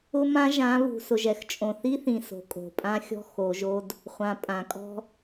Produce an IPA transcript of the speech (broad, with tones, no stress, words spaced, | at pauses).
ʊ˦mã˦ ʒã˨˦βṳ˨ sʊ˨ʒ ɛ˨xt͡ʃʼõ˨θi˦θĩ˨ so̤˨kʼo̤˨ pʼã˦xʲɔ̤˦ xo˨˦ʒo˦d | χʷã˨pʼã˨ kʼɔ̤˦